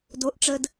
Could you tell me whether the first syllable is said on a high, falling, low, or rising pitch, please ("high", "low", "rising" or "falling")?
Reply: rising